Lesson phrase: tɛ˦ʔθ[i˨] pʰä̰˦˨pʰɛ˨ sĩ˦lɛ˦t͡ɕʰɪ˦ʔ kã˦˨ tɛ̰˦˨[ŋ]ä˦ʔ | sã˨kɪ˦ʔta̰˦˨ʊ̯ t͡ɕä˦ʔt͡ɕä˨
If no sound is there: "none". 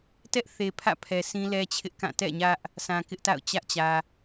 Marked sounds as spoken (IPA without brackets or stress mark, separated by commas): e˨, ɲ